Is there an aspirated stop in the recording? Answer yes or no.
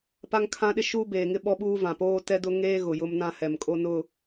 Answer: yes